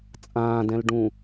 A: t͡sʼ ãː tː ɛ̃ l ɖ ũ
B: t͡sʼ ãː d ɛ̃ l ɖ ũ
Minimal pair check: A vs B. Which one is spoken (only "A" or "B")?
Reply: B